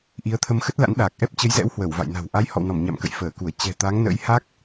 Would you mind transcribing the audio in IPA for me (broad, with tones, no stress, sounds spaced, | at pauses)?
ʔ i˨˦ ə̯ t̪ʰ ə˧ m x ə˦˥ t̚ l a̰˧˥ n ɗ aː˨˩ k̚ ʔ ɛ˦˥ p̚ t͡ɕ ə˨˦ j z ɛ̰˧˥ w h w ə˧˩ w v a̰˧˨ j n a̤˨˩ w ʔ a˨˦ j h ɔ̰˧˨ w n ɔ˧˩ m ɲ a̰˧˨ m k ə̰˧˨ j f əː˧˩ k u˧˩ ə̯ t͡ɕ ɛ̤˨˩ t̪ a˨˦ ŋ n ə̰˧˥ j h a˦˥ k̚